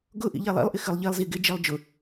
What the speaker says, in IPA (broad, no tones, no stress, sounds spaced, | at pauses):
ɡ ʊ ʔ ḭ ʎ e lˠ ḭ lˠ ʔ ɪ x ɨ lˠ ʎ i lˠ z i ɡ ɪ d͡ʒ i lˠ d͡ʒ ʊ